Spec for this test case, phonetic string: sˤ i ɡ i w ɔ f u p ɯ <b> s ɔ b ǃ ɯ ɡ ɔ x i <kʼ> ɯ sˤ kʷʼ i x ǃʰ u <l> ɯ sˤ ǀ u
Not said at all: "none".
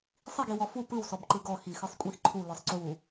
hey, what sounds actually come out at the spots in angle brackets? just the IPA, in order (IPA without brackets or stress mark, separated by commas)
w, x, l